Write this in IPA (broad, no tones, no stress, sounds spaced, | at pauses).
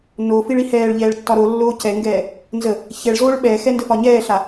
n o f i ɭ i h ɛː ɭ ʎ ɛː ɭ tː ɒ ɾ o lː oː c ɛ ŋ ɡ ɛː | n z ə | ç ɛ ɭ z oː ɭ ɓ ɛ x ɛ n d ə f ɒ ɲ ɛː ɬ a